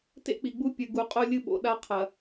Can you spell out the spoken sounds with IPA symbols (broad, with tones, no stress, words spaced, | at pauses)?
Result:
tḛ˦k͡pi˨ɡ͡bu˦ pʲɨ˨ɡu˨ qʼo˦lʲɨ˦ɓo̰˨ ɗa˦qʰɐ˨